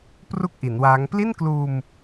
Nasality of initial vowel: oral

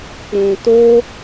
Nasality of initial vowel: nasal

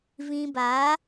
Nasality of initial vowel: nasal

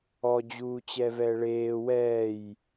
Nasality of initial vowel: oral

